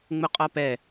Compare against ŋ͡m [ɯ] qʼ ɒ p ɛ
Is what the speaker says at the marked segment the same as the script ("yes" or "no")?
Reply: no